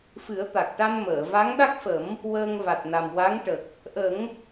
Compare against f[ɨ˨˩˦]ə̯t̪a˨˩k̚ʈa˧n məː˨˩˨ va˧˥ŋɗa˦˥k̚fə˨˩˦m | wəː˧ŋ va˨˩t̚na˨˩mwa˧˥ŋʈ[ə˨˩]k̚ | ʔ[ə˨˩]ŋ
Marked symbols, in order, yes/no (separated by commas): yes, yes, no